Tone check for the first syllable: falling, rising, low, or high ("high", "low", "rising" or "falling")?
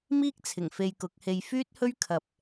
high